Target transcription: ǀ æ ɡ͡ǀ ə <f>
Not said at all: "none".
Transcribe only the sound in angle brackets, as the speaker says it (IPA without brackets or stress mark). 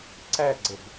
b